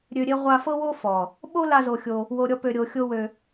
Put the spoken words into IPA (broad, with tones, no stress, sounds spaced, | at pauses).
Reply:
ɾʲ ø˧ ɾʲ e˦ ʁʷ a˧ f ɤ˦ w o˦ f ɔ˨ | ɓ o˦ l a˦ z o˧ xʲ o˧ | w o˧ ɾʲ ɔ˦ p ø˧ ɾʲ o˧ xʲ o˦ w ø˧